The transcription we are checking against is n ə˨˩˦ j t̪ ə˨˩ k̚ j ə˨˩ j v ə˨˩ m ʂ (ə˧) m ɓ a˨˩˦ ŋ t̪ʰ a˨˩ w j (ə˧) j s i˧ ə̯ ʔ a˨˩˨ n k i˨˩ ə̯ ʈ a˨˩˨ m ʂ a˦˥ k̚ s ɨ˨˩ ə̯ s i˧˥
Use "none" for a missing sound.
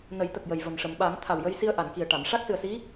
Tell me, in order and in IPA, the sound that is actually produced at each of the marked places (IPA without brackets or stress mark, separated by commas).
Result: ə˨˩˨, ə˧